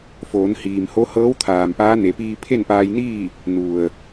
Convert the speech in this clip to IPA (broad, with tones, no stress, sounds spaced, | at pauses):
f oː˩˧ n h iː˩ m h o˧˥ h ɤː˧˥ w t̪ʰ aː˩ m p aː˧˥ n e˩˧ p iː˧ pʰ e˥˨ n p aː˧ j n iː˥˨ | n u˩ ə̯